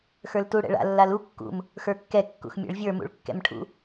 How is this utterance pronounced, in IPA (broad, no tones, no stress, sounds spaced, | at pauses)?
x ə˞ l t u ɽ ɛ̰ ɭ a̰ lː a l u kː ṵ m | x ə˞ kː ɛ kː ṵ x mʲ ɛ̰ ɭ vʲ ə˞ m ṵ ɭ kː ɛ̰ m ʈʰ ṵ